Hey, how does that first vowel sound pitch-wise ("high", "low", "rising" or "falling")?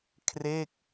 falling